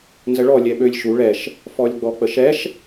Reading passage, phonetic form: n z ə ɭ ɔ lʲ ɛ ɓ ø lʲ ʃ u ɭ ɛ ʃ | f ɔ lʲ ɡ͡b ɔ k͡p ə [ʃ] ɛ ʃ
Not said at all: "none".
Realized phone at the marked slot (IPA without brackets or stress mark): ʃ